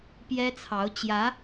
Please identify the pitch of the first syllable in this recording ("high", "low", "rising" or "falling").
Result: high